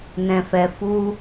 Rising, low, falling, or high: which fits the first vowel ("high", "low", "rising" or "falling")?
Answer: low